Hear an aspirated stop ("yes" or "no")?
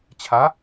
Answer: yes